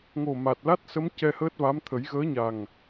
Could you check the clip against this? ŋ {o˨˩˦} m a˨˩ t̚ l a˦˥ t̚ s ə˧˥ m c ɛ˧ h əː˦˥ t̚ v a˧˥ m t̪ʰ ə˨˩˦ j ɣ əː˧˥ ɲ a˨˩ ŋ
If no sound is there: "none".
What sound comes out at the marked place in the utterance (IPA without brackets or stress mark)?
o˨˩